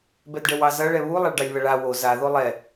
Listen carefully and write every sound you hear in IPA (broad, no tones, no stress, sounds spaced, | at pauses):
b ɛ d ɖ ɛ w ɑ z ɐ ɭ ɛ β u lˠ a ɭ ɖ ɑ lʲ β ɐ ɭ a w o z a ð o lˠ ɛ